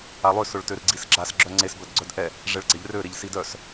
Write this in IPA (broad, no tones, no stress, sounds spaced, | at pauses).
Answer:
a lˠ ø s ʊ ɭ t ø r ɡ͡ǀ i s ɡ͡ǁ a s ɡ͡ǁ œ ŋ͡ǀ e s b œ d ɡ͡ǀ œ d ʔ ɛ | ʐ ɛ ɭ ɡ͡ǀ ɛ ʎ r ø ɾ e ʎ s i d œ s